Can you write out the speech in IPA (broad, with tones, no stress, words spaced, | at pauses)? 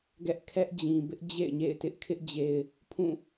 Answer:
ɡɛ˦ʔkʰɛ˦ʔd͡ʑĩ˨ bɪ˦ʔ d͡ʑḛ˦˨ɪ̯ɲḛ˦˨ɪ̯ tɪ˦ʔkʰɪ˦ʔd͡ʑe˨ɪ̯ | pʰũ˦˨